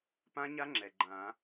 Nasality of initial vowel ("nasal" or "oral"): nasal